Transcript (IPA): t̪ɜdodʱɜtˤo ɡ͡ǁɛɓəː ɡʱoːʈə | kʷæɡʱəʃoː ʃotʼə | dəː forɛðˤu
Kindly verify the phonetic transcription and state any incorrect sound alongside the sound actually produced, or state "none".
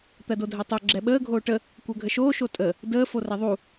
æ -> ɜ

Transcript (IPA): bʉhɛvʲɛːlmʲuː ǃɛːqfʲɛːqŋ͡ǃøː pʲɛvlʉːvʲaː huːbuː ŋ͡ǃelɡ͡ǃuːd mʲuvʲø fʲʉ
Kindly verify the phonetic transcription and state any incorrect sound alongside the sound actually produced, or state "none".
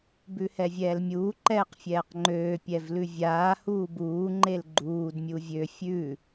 ʉː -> ʉ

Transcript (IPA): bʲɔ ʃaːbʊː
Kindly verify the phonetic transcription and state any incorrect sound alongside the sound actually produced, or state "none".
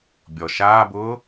none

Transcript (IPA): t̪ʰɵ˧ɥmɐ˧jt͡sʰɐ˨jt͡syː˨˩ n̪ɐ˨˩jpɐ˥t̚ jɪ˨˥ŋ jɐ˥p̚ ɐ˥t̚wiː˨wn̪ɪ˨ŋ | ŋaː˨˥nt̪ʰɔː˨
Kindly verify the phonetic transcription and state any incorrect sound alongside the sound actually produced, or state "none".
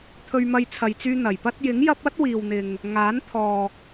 yː˨˩ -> yː˧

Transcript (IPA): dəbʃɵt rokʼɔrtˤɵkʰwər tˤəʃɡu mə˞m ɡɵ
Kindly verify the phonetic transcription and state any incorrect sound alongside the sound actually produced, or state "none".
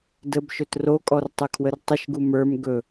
none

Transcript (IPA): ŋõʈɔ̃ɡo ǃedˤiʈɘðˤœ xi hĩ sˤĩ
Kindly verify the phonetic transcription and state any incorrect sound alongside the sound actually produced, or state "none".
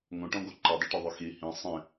ɘ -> e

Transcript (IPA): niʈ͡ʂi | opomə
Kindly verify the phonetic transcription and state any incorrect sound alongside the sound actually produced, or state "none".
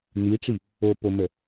none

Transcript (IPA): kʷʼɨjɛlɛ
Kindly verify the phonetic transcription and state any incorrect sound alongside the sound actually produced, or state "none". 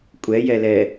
ɨ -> ɛ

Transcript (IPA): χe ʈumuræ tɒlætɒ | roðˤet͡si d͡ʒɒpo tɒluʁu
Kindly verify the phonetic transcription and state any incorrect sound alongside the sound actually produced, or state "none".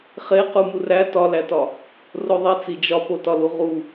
ʈ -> q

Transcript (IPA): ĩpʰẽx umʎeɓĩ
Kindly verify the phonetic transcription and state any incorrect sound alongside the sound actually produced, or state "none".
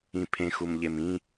ɓ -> m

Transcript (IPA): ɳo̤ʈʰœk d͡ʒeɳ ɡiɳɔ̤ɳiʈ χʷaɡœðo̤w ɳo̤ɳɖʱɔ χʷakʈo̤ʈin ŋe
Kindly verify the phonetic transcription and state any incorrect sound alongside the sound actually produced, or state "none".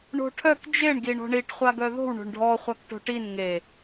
none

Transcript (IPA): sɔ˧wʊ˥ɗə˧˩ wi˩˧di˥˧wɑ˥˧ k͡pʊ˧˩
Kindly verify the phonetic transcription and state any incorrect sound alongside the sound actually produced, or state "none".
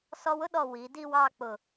ə˧˩ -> ɔ˧˩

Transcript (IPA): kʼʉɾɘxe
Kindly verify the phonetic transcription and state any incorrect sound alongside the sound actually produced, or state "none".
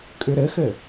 e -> ɘ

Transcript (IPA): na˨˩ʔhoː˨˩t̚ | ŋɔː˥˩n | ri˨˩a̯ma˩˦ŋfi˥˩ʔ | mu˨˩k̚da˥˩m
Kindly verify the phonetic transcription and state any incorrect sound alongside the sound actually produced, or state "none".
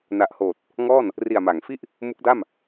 u˨˩ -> u˦˥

